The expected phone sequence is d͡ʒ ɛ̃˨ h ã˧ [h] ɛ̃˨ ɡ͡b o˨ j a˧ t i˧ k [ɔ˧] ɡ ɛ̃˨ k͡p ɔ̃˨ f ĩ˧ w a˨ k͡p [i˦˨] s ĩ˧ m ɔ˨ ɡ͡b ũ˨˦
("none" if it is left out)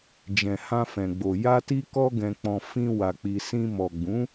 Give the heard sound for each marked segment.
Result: f, ɔ˧, i˨

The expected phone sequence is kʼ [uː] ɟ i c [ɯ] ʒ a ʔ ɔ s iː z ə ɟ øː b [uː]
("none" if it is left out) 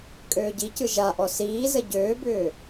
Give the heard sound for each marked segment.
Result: øː, ɯ, ʏː

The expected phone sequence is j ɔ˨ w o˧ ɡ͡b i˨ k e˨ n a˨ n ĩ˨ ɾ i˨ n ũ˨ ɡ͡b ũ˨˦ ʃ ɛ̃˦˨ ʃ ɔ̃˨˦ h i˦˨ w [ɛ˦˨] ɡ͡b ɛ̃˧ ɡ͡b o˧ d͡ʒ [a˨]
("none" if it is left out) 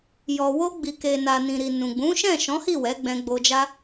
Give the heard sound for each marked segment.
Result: ɛ˨˦, a˦

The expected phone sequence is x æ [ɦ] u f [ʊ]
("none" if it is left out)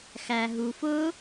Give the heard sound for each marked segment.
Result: ɦ, ʊ

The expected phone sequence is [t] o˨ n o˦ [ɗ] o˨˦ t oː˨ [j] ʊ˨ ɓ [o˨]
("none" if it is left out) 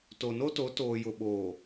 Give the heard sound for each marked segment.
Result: t, t, j, oː˨

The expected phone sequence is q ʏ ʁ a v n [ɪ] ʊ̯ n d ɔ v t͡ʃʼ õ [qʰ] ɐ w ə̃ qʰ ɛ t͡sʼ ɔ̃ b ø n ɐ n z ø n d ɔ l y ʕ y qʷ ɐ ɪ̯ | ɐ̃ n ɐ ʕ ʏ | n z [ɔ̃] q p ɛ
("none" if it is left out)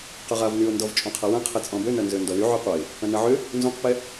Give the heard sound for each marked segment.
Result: y, qʰ, õ

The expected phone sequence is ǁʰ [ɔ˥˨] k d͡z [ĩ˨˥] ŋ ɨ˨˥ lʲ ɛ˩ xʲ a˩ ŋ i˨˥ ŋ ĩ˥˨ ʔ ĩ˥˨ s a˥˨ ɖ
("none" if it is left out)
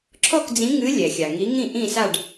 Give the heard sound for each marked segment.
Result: ɔ˥˨, ĩ˨˥

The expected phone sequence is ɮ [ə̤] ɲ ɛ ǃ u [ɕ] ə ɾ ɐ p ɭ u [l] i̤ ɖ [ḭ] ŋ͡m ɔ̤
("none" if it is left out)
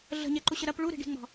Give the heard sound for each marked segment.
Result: ə̤, ɕ, ɾ, i̤

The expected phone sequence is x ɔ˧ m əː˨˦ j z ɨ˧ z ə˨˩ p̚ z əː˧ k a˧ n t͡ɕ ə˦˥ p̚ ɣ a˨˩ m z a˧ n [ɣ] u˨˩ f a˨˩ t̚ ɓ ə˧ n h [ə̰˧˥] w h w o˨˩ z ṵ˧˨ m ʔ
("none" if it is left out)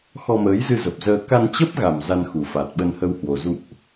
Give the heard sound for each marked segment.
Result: x, ə˧

